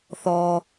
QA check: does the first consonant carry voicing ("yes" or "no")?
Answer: no